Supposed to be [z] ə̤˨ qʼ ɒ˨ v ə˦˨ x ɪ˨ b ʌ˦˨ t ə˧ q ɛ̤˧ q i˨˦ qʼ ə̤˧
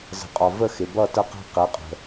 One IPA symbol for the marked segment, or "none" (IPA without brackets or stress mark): z